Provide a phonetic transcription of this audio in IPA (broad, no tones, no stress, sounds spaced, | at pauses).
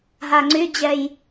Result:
ɦ a ŋ͡ǀ y d͡ʑ ɛ j